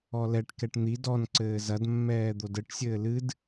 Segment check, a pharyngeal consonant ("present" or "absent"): absent